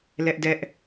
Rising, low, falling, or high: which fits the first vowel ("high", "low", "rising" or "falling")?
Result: high